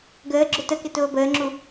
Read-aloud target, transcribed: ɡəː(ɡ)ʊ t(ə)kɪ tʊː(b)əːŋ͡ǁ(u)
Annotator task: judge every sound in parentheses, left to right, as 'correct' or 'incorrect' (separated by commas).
incorrect, correct, correct, correct